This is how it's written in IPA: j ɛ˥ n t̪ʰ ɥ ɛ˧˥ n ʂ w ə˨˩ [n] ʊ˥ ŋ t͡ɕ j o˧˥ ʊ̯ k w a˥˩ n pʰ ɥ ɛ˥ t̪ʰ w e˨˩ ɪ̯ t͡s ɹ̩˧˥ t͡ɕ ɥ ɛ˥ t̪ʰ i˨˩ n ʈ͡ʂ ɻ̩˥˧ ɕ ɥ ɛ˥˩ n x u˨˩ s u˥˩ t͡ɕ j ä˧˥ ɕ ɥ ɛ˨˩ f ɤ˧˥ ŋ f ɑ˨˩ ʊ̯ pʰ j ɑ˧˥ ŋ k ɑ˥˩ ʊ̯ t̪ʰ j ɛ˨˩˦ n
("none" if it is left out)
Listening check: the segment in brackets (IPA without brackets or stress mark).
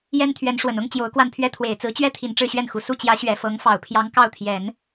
n